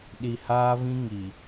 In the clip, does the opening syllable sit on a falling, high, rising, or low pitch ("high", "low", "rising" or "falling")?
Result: low